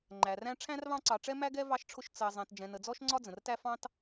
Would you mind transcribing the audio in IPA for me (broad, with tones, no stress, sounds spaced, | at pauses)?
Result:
ŋ͡ǃ æ˩ r æ̃˦ ʈ͡ʂʰ æ̃˥ r β ɑ̃˦ ǀ ɑ˨ ʈ͡ʂ ɛ˥ m æ˥ ɡ ɛ˥ v ɑ˦ ʃ ʈ͡ʂʰ ʊ˦ ʃ t͡s ɜ˨ zˤ ɛ̃˨ t d͡ʒ ɛ̃˨ n ə˨ d͡z ɔ˥ ʃ ŋ͡ǀ ɒ˥ d͡z ə̃˩ r t æ˥ f ɑ̃˥ t